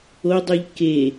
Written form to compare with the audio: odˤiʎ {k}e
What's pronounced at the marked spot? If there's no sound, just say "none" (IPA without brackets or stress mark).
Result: k